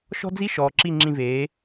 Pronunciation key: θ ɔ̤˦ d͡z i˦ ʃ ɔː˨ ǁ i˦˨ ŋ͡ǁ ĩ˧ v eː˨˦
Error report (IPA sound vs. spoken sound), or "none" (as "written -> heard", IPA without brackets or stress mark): θ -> ʃ